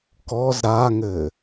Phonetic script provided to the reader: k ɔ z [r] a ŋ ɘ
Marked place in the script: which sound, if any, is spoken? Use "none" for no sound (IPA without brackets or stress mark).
ɾ